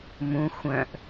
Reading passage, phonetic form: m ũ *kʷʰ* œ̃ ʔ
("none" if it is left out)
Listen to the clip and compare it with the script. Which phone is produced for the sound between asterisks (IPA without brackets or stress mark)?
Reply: xʷ